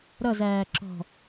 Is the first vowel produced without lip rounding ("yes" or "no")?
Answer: yes